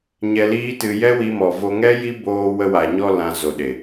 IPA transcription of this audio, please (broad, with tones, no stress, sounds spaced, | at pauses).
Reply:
ɲ ɛ˧ l iː˦ t ɨ˧ j ɛ˦ w i˧ m ɔ˨ v o˧ ŋ ɛ˦ j i˦ b oː˧ w ə˧ w a˨ ɲ ɔ˧ l ã˧ z o˨ ɗ e˨